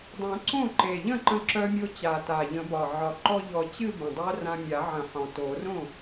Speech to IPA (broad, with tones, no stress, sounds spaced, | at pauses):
dˤ œ̃˨˩˦ ǀ õ˥˩ ǃ e˨˩ ʎ ə̃˥˩ ǃ ə̃˧ ǁ œ˧ mʲ o˧ t͡ɕ a˨˩ t a˨˩ ʎ ə̃˨˩˦ b ɒ˨˩ ʕ ɒ˨˩ ǃ ɔ˧ ʎ ɔ˨˩˦ t͡ɕ ɨ˥˧ b ə̃˨˩ dˤ œ˦˥ r ã˧ mʲ a˨˩˦ ʕ ə̃˨˩˦ ħ ɔ̃˨˩ t o˨˩˦ r õ˥˩